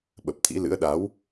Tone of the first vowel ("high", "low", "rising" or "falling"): low